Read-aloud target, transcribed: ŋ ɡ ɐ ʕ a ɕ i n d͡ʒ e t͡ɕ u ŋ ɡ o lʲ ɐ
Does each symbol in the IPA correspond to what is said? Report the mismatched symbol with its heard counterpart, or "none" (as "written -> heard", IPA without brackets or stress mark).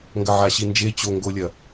u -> o